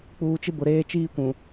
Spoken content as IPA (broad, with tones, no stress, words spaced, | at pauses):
k͡puː˨t͡ʃɪ˦ bʊ˨ɾeː˦ t͡ʃiː˦kʷũ˨